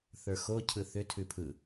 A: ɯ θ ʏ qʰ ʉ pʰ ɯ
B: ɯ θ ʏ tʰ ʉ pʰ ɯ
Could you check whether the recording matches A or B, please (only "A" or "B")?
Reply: B